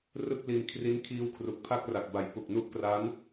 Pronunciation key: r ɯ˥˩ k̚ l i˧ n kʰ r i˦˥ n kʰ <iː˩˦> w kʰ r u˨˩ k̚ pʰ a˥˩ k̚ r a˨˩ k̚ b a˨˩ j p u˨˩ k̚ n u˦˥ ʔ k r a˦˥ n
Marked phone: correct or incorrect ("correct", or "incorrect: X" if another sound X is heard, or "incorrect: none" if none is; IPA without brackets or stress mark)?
incorrect: iː˦˥